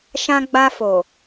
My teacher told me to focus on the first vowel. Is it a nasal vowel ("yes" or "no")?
yes